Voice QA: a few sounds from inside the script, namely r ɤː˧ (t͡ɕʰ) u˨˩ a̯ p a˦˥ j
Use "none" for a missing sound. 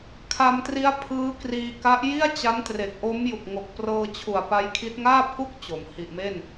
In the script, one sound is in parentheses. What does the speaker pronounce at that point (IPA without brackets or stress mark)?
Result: t͡ɕʰ